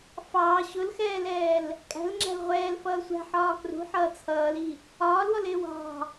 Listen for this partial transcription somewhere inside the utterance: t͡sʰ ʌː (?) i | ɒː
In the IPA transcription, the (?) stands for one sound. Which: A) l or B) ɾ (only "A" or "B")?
A